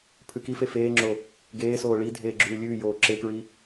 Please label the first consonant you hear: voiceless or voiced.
voiceless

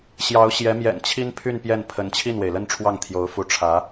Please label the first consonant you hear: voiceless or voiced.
voiceless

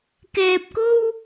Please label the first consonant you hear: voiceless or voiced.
voiceless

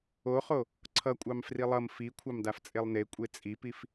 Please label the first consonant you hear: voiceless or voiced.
voiceless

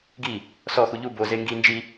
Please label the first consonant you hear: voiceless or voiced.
voiced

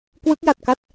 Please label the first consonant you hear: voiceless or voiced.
voiceless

